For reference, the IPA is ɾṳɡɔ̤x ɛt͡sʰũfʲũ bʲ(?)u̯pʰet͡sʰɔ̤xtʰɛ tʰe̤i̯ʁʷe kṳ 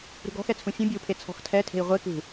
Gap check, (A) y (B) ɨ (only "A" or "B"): B